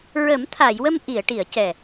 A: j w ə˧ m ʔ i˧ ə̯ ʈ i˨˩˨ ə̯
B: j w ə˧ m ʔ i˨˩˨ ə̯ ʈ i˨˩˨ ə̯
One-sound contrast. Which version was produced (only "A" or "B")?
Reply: B